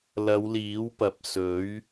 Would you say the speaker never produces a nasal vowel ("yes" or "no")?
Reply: yes